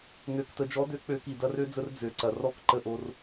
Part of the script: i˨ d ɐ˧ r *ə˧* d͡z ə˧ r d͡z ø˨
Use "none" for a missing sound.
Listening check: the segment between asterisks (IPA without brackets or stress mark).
ø˧